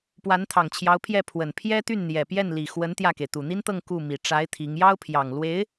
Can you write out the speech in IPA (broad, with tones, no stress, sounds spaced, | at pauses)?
p w a˧˥ n t̪ʰ ɑ˨˩ ŋ t͡ɕʰ j ɑ˧˥ ʊ̯ pʰ j ɛ˥˩ pʰ w ə˨˩ n pʰ j ɛ˥ t̪ y˥˩ n n̪ j ɛ˨˩ p j ɛ˥˩ n l i˨˩ x w ə˧˥ n t̪ j ä˥˩ k e˩ ɪ̯ t̪ u˨˩ n̪ i˥ n t̪ ɤ˥˧ ŋ k u˥˩ m i˨˩ ʈ͡ʂ a˧˥ ɪ̯ t̪ʰ i˧˥ ŋ j ɑ˥ ʊ̯ pʰ j ɑ˨˩ ŋ l w e˧˥ ɪ̯